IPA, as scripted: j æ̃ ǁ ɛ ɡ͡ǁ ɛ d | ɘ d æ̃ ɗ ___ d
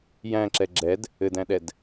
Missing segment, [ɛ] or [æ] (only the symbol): ɛ